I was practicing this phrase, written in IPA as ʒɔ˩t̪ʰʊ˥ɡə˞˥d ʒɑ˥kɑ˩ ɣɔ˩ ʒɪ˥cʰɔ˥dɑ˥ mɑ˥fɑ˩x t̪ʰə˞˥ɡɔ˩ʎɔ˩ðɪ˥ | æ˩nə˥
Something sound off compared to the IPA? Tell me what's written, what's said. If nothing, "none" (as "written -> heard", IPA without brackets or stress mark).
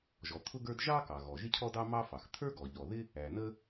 none